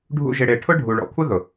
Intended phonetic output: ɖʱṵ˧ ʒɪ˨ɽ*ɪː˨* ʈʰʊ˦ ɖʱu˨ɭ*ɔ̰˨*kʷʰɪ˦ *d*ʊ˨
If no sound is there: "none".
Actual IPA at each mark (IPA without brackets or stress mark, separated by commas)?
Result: ɪː˨, ɔ̰˨, ð